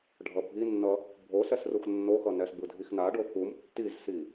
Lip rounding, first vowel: unrounded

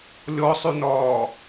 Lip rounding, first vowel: rounded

